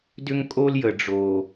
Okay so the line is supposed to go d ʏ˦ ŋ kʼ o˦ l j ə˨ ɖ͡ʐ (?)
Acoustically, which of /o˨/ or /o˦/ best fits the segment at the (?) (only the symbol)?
o˨